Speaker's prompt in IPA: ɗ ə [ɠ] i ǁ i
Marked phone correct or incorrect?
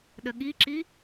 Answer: correct